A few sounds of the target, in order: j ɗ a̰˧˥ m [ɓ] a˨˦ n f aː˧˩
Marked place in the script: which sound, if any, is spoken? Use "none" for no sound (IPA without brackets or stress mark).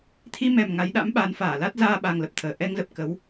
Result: ɓ